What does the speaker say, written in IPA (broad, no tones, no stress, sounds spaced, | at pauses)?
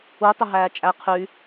u tˤ ʊ ɦ æː t͡ʃʼ æ qʰ y